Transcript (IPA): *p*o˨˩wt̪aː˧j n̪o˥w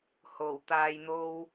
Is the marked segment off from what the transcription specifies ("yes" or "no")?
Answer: yes